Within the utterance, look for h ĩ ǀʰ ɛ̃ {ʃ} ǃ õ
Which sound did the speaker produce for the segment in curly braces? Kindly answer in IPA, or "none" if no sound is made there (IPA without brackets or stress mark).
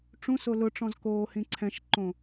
ʃ